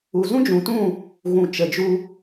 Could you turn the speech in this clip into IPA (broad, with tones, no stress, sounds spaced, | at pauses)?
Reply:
u˨ z ũ˦ d͡ʒ ũ˨ t ũ˦˨ | ɣ ũ˨ t͡ʃ ə˨ d͡ʒ u˧